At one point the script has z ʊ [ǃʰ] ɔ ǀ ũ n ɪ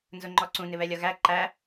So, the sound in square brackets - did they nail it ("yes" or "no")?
no